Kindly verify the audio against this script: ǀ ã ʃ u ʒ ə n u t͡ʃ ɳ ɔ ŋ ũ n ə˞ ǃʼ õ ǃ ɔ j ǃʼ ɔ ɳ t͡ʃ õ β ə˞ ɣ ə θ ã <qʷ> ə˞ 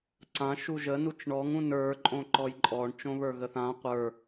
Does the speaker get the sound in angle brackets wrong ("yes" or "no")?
no